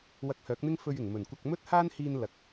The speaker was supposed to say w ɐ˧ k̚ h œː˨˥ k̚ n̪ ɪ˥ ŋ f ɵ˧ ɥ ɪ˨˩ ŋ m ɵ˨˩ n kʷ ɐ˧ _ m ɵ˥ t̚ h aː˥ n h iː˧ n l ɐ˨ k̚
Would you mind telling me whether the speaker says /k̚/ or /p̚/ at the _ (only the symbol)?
k̚